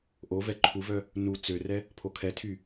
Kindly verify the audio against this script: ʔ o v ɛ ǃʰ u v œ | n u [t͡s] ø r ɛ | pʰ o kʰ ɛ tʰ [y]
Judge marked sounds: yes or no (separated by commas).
yes, yes